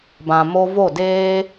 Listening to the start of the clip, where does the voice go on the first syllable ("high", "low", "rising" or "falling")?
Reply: low